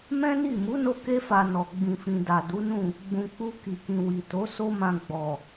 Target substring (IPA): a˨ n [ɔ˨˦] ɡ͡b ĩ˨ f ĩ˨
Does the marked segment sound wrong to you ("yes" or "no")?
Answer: yes